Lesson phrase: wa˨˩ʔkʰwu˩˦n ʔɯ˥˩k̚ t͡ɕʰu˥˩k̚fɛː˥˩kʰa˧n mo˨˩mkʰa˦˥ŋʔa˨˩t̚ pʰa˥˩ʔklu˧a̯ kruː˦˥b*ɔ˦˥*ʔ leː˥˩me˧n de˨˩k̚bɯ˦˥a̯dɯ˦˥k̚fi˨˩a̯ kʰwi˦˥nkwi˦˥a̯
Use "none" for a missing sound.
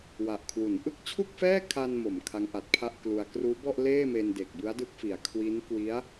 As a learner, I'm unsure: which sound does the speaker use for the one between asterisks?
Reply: ɔ˥˩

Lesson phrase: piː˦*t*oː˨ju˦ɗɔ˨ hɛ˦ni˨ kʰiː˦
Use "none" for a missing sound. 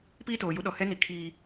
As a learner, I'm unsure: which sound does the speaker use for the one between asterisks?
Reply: t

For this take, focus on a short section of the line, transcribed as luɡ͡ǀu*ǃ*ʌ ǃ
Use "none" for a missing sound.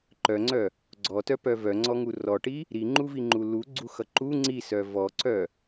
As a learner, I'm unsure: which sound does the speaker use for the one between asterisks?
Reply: x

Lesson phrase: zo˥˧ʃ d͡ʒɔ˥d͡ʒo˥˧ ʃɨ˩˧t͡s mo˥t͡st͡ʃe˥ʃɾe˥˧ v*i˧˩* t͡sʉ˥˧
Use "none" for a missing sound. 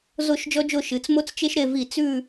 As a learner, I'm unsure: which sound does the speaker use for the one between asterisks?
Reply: i˧˩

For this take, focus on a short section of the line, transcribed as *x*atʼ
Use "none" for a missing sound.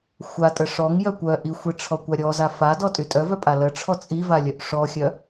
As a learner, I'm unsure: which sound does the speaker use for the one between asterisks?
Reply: xʷ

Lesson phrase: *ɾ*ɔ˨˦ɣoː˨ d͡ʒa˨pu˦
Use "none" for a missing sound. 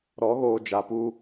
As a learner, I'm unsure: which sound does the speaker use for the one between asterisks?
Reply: ɾ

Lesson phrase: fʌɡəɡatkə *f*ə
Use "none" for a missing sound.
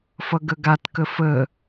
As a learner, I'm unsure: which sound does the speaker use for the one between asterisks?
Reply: f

